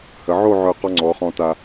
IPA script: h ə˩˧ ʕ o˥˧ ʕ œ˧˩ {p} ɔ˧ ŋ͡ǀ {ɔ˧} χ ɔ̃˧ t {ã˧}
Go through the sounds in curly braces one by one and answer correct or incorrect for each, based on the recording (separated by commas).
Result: incorrect, incorrect, incorrect